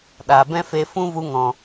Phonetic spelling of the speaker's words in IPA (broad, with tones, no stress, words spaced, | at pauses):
ɗa˨ bɛ̃˦fe˧ fũ˦vu˧ŋɔ̃˨